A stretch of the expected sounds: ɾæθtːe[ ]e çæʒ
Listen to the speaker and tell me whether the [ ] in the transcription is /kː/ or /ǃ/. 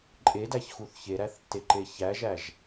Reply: ǃ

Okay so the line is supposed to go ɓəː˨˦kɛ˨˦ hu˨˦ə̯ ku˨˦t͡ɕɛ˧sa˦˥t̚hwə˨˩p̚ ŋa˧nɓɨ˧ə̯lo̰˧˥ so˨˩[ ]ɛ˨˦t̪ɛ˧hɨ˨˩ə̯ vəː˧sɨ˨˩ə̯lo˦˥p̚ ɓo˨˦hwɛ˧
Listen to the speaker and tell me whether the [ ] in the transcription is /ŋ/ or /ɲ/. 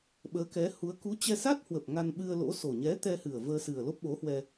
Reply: ɲ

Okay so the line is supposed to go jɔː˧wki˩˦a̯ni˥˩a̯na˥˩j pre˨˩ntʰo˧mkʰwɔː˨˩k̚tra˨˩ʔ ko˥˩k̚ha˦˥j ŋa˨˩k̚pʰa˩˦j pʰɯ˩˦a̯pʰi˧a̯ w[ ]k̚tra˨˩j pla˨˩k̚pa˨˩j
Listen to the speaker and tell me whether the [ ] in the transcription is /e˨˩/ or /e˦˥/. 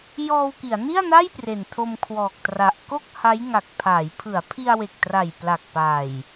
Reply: e˨˩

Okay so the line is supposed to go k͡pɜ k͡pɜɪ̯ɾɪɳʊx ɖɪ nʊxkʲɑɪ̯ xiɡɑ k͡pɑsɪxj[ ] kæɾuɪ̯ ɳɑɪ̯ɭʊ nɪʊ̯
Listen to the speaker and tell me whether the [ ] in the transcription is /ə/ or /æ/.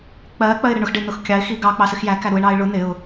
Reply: æ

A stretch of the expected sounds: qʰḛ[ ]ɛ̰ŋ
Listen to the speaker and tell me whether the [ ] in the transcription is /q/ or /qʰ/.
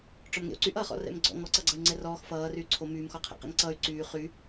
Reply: q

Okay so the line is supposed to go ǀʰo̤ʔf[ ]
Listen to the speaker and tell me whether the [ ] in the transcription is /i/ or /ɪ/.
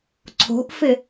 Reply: ɪ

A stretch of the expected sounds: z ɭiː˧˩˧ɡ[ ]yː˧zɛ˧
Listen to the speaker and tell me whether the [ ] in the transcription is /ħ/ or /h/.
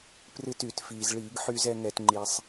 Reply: ħ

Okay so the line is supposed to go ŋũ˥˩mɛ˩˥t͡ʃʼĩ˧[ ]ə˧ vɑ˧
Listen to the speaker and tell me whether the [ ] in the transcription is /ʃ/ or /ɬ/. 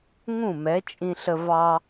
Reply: ɬ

